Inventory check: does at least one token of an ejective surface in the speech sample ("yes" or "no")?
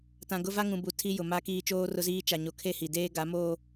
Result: no